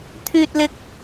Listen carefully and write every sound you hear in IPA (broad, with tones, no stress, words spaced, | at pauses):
t̪ʰyː˥t̚lɪ˥k̚